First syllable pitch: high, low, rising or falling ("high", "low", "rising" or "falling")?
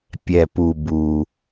low